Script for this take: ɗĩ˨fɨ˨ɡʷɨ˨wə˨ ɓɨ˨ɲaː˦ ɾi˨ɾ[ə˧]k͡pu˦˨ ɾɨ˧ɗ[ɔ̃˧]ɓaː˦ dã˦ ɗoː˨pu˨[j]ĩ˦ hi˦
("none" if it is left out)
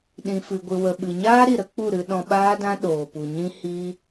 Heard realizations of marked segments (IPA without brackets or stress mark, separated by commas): ə˦, ɔ̃˧, ɲ